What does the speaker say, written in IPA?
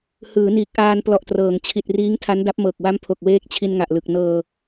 h ɯː˩˦ n iː˨˩ k̚ ʔ aː˧ n p l ɔ˨˩ ʔ t r ɤː˩˦ ŋ t͡ɕʰ i˨˩ t̚ r iː˦˥ ŋ tʰ a˦˥ n d a˦˥ p̚ m ɤː˨˩ k̚ w a˦˥ m pʰ o˨˩ k̚ w eː˦˥ k̚ t͡ɕʰ i˧ n ŋ a˨˩ ʔ l ɯ˨˩ k̚ n ɤː˧

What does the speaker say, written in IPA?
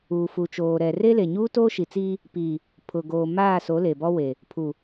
uː˨ f u˨ t͡ʃ oː˨ ɾ ɛ˨ r e˦ l e˨ ɲ uː˦ t oː˦ ʃ i˨ t͡s iː˦ | p iː˨ | pʰ ʊ˨ ɡ oː˨ m aː˦˨ s o˨˦ l e˨ b ɔ˦ w e˨ | pʰ u˨

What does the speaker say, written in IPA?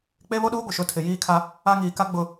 k͡p e˦ β o˦ ɗ uː˦ ɡʷ ɪ˨ ʃ ʊ˨˦ tʰ ɪ˨ j iː˦ kʰ a˦ | a˦ ŋ iː˨ k a˦ ɡ͡b ʊ˨

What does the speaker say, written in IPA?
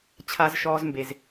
t͡ɕʰ a˧ z ʃ ɔː˧ z m b e˨ z

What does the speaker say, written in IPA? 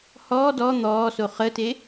h ɔː d ɔ n̪ ɔː s o χ ə t e

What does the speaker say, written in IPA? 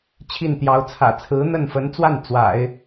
t͡ɕʰ i˥˩ n t̪ j ɑ˧˥ ʊ̯ t͡sʰ ä̰˨˩ t͡sʰ ɹ̩˧˥ n̪ ə˥˩ n f ə˧˥ n t͡s w a˥˩ n t͡s w a̰˨˩˦ ɪ̯

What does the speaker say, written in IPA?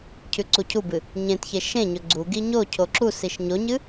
cʰ ʉ ǀ u cʰ u b ɨ | ɲ ẽ t ç e ʃ ẽ ɲ ɵ ɡ͡ǀ u ɡ i ɲ o cʰ o ǁ u s i ʃ ɲ o ɲ ɨ

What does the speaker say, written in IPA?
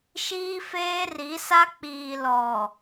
ʃ iː˦ f eː˦ r i˨˦ s a˦ k͡p iː˨ l ɔ˨

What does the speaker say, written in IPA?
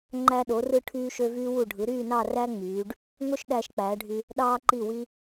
ŋ͡ǃ æ˧ ɗ o˩˧ r ɯ˧ ʈʰ yː˧ ʃ ø˧ v yː˧ w u˧˩ ɖʱ ɯ˩˧ ɾ yː˥˧ n ɑ˥˧ r æ˥ ŋ͡m yː˩˧ ɖ | ŋ o˥ ʃ ɗ æː˧ ʃ k͡p æː˩˧ ɖʱ y˧ | ɗ ɑː˧ ǃ i˧˩ w i˧

